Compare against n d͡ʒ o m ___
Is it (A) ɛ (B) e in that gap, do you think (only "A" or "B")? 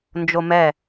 A